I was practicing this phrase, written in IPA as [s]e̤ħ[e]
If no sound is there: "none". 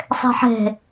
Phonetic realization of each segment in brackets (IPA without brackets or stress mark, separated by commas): sˤ, e̤